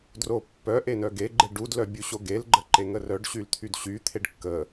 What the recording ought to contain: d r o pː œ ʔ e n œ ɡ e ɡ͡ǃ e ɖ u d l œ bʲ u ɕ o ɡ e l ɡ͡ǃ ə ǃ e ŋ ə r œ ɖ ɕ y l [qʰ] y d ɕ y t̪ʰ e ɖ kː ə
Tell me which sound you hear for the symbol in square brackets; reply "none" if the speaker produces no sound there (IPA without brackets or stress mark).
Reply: t̪ʰ